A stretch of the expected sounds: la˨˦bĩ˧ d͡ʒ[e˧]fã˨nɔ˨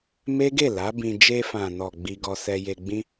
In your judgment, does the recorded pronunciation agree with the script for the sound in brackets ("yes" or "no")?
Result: yes